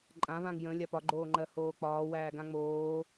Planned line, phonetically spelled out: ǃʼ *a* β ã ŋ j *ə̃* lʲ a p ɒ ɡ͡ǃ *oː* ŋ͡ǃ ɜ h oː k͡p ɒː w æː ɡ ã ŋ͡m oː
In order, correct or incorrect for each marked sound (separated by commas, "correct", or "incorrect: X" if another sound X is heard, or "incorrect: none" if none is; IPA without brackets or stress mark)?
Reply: incorrect: ã, correct, correct